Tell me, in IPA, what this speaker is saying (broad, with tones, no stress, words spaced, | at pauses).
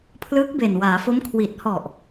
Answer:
pʰlɯː˦˥k̚be˨˩nwaː˩˦fo˦˥m kʰwi˨˩t̚hɔ˨˩ʔ